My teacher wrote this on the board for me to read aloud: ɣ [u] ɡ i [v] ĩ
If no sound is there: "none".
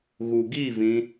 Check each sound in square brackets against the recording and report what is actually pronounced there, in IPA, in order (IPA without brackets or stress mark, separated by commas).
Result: u, v